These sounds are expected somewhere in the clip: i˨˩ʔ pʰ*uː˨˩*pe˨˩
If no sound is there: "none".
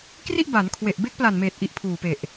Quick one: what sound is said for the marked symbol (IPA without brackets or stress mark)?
uː˨˩